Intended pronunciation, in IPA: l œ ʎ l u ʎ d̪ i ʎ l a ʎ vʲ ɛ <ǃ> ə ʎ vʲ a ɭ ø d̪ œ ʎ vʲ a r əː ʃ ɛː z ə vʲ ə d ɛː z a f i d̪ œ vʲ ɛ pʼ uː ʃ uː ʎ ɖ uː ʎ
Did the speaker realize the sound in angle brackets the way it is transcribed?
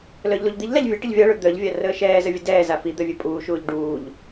no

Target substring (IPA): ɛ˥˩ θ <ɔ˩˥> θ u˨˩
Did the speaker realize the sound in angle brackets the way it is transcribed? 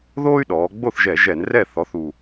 yes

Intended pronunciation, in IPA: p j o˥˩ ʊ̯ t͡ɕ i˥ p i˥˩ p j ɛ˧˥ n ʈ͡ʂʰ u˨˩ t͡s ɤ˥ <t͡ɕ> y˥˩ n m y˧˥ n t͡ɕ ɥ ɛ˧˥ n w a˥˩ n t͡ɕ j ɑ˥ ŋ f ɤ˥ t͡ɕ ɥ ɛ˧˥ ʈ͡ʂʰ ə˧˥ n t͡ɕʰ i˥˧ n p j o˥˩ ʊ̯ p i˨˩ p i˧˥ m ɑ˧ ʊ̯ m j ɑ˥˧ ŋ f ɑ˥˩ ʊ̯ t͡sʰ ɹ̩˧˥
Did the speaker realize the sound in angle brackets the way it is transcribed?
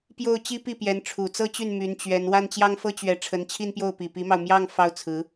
yes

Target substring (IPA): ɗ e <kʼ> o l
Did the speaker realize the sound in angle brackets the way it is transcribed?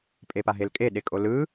yes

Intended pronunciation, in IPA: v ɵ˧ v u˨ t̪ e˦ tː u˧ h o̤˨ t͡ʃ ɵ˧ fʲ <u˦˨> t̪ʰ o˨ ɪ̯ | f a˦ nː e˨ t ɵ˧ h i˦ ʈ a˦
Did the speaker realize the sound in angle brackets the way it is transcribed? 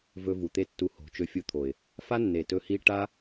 no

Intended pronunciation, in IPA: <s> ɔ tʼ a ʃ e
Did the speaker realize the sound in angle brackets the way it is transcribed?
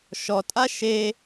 no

